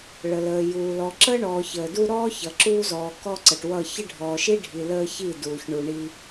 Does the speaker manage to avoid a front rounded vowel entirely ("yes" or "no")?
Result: yes